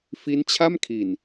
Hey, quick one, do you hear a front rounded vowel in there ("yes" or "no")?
no